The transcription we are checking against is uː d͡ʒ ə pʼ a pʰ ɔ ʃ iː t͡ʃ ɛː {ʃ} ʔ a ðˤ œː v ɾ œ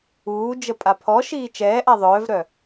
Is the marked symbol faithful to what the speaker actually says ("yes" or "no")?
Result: no